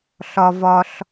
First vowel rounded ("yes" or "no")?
yes